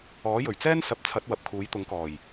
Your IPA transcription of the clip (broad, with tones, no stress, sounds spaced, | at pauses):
ɔː˨˥ j ɵ˨˩ ɥ t͡s ɛː˥ n s ɐ˨˥ p̚ t͡sʰ ɐ˨˥ t̚ w ɐ˨ p̚ kʰ uː˨˥ j t̪ ʊ˨˥ ŋ k ɔː˨˩ j